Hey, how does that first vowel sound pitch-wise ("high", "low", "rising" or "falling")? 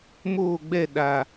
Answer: falling